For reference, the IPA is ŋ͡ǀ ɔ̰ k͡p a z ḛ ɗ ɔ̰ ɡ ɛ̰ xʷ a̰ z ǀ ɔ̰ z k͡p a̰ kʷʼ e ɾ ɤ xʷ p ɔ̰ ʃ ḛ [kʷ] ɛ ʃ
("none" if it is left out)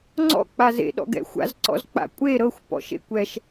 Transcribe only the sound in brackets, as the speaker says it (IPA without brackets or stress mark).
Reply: kʷ